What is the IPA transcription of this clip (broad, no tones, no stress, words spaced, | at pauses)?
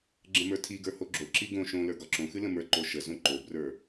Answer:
ɡ͡ǁə̃mə˞tʰiɡə˞ hoɡ͡ǁoǁi ɡõ ʃõ lə˞ɡɒǁõxɨ lə̃mə˞ǃo ʃəzõ ǃobrə˞